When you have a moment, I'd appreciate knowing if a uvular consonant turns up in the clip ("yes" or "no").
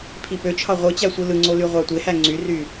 yes